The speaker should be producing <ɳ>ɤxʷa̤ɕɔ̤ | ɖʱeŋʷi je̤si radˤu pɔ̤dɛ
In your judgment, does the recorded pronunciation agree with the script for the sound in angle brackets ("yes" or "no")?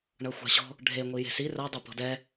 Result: yes